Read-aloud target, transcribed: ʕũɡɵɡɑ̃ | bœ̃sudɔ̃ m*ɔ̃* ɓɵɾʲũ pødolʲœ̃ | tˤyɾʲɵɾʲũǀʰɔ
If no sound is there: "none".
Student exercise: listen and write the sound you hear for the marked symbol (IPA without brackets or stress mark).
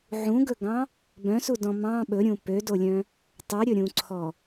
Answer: ɑ̃